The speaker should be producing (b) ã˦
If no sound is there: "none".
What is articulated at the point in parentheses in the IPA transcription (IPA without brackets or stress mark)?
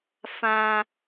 f